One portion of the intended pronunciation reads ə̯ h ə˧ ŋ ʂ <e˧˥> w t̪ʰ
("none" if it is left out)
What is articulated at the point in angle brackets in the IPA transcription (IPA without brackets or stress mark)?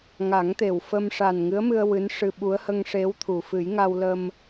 e˧˥